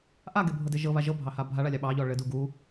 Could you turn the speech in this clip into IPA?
ʔ a ɡ e bʱ ɤ d e ʒ ɤ β a ʒ ɤ bʱ ɑ h a bʱ a ɭ a lʲ ɑ ɓ ɑ ʎ ɔ ɭ ɘ d u ɡ u

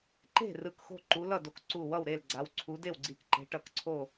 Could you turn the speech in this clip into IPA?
ǃ e̤˥˨ r ɯ˧˩ k x o̤˥˨ ǃ u˨˦ l ʌ˥˨ d o˧˩ k ǀ u˧˩ w ʌ˥˨ w ɾ e˥˨ l ɡ͡ǀ a˨˦ w ǀʰ u˨˦ d e˥˨ w ɡ͡ǀ i˧˩ k ǃ e̤˨˦ ʈ ʌ˧˩ k ǀʰ o˥˨

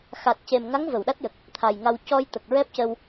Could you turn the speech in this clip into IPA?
x a˨˩ t̚ c e˨˩ m ŋ a˧˥ ŋ v ə˨˩˨ w ɗ a˦˥ t̚ j ə˨˩ k̚ | t̪ʰ a˨˩ j ŋ a˧ w c ɔ˧ j t̪ ə˨˩ k̚ ɹ ɛ˦˥ p̚ c ə˧ w

